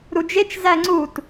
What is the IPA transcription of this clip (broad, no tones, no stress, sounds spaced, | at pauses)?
ɾ u d͡ʒ e t͡ʃ z æ ŋ͡ǀ u t